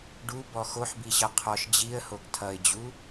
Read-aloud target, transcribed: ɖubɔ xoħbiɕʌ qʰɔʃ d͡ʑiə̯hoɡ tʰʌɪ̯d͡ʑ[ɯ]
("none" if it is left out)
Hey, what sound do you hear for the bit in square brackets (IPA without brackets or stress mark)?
u